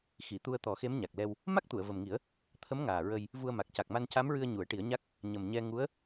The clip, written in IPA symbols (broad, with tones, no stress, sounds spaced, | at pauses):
x i˨˩˨ t̪ u˧ ə̯ t̪ ɔ˨˩˦ x e˧˥ m ɲ a˨˩ k̚ l ɛ˧ w | m a˦˥ k̚ t̪ u˨˩˨ ə̯ v ə˨˩ m ŋ i˨˩˦ ə̯ | t̪ʰ ə˧˥ m ŋ aː˨˩ ɹ ə˧ j | v u˧ ə̯ m a˨˩ k̚ c a˨˩ k̚ m a˧ n c a˧˥ m ɹ ɨ˧ ə̯ ɲ u˨˩˦ ə̯ ʈ i˨˩˦ ə̯ ɲ a˦˥ k̚ | ɲ ə˨˩ m ɲ ɛ˧ ŋ u˧˥ ə̯